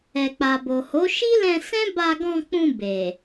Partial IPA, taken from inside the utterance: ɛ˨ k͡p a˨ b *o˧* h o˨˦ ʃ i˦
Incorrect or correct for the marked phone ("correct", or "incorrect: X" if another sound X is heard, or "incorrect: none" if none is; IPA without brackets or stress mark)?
incorrect: o˨